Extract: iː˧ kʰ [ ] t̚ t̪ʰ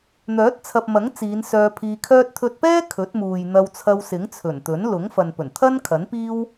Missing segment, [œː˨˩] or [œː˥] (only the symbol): œː˥